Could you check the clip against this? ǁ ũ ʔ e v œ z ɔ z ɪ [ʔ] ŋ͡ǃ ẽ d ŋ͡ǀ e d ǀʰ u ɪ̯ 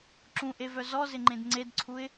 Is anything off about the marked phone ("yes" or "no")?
yes